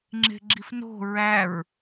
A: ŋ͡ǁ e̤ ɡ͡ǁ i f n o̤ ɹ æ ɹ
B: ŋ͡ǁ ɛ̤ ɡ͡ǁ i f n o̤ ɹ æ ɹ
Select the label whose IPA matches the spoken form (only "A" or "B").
A